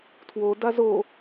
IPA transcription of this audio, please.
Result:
tʰ w o d a z o

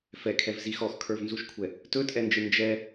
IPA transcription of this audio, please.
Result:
f ɛ kʰ ɛ v z i x ɔ x kʰ ə˞ v n z u ʃ kʷʰ ɛ | t ɵ tʼ ɛ n d͡ʒ ɨ n d͡ʒ ɛ

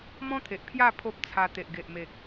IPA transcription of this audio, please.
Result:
m ɔ̃˦ t̪ʰ e˨ ʔ pʰ j a˥˧ pʰ o˦ p̚ t͡sʰ a˧ t̪ e˨ ʔ ɡ e˨ ʔ m e˨ k̚

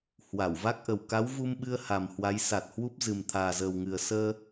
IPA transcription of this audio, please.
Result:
h w a˧˩ w v a˦˥ k̚ ʔ ə˨˩ w k a˨˦ w v u˧ m ɓ ɨ˧ ə̯ h a˨˩ m h w a˨˦ j s a˨˩ t̚ h w u˦˥ p̚ z ɨ˨˩ m t̪ʰ aː˨˩ z əː˨˩ w ŋ ɨ˨˩ ə̯ s əː˧

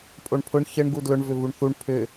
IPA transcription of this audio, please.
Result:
pʼ o ɳ pʰ ʊ ɳ ç ə ɳ ɡ u d l ʊ ɳ v ʏ v u ɳ θ u ɳ pʰ ʏ

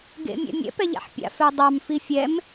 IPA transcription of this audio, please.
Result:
ɡ ḛ mʲ ɛ̰ mʲ ɛ̰ p ɛ ʎ a̰ ħ pʲ a̰ f ɛ dˤ ɑ m f i fʲ ɛ m

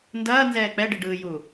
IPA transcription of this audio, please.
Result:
n d ɐː n z ɛː k͡p ɛ ɖ i ɖ ɯː j u

